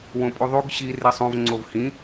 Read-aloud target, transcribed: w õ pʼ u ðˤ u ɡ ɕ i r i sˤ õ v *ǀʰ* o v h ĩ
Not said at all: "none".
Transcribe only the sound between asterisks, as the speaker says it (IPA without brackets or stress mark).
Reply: ŋ͡ǀ